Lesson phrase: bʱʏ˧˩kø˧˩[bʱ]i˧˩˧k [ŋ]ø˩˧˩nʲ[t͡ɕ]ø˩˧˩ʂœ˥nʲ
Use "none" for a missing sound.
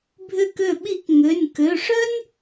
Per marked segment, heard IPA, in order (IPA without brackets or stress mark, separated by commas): ɓ, ŋ, k